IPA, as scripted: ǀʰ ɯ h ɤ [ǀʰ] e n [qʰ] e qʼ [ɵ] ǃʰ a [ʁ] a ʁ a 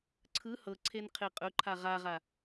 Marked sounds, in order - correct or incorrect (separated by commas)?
correct, correct, correct, correct